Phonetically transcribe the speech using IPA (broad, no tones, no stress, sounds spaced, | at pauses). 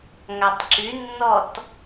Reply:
ŋ a tˤ ǁ y nː ɔ t